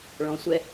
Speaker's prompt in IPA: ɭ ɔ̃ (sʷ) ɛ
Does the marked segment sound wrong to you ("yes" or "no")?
no